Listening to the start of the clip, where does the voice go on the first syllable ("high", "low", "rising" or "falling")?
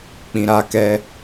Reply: low